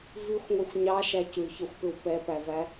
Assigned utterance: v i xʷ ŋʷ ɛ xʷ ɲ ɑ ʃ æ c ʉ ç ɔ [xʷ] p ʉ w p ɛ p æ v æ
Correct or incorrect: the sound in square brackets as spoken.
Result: correct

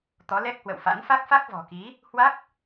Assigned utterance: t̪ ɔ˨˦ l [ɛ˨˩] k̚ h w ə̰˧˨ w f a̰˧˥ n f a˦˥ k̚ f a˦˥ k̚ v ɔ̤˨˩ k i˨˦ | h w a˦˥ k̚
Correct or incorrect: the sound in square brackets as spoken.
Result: incorrect: ɛ˦˥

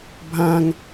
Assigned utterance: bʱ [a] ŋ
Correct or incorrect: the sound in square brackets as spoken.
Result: incorrect: ã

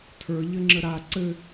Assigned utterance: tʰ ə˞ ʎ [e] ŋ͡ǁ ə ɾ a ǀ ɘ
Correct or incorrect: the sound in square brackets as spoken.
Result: incorrect: ɘ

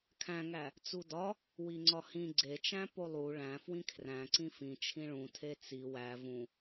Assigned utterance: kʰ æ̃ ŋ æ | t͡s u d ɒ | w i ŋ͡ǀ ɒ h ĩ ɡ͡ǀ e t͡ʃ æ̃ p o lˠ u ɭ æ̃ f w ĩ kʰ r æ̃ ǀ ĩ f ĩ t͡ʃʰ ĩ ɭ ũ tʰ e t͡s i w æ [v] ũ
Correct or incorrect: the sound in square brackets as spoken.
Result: correct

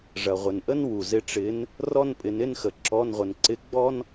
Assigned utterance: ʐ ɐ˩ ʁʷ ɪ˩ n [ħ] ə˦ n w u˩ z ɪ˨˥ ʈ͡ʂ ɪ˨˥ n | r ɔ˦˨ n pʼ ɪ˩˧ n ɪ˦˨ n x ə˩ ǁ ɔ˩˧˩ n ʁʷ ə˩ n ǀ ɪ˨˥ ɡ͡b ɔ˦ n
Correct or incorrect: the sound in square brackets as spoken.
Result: incorrect: ʔ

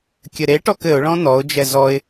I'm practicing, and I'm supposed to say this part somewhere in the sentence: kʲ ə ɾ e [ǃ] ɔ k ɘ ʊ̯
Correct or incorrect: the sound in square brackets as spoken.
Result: incorrect: ʈ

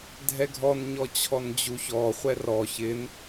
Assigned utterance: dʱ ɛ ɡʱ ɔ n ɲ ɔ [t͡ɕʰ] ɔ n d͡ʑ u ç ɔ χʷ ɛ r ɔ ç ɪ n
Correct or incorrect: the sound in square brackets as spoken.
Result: correct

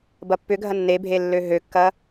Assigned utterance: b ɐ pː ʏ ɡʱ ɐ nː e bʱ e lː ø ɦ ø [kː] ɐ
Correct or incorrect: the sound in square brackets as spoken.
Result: correct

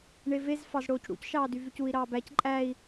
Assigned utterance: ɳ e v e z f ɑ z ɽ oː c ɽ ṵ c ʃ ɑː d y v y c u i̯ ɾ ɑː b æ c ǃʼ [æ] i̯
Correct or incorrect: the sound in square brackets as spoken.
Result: correct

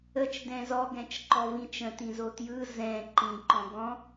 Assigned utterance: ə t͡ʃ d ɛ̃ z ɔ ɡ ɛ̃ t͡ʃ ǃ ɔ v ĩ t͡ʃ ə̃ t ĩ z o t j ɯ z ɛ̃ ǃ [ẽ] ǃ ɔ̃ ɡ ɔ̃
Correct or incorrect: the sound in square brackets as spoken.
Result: incorrect: ĩ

